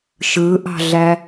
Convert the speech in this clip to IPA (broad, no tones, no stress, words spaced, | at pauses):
ʃɯʔɑ̤ɮæ